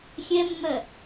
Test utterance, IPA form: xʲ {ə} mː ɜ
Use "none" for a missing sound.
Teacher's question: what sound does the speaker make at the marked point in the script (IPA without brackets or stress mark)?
ɛ